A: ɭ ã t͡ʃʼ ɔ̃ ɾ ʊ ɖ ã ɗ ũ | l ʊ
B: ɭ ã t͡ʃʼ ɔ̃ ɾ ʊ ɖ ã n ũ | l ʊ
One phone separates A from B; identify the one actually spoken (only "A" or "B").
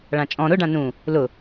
B